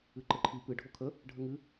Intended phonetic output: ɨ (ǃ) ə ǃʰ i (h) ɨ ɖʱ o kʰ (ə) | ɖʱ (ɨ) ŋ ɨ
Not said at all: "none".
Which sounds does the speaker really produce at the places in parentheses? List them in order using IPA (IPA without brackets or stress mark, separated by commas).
ǃ, p, ə, ə